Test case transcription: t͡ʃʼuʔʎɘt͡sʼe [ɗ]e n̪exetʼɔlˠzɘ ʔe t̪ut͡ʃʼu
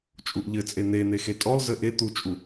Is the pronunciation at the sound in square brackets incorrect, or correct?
incorrect